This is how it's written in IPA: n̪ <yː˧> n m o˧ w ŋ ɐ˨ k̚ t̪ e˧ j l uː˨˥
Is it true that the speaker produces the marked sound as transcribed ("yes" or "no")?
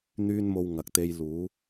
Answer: no